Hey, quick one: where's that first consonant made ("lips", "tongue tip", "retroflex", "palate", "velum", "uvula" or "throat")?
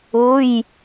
palate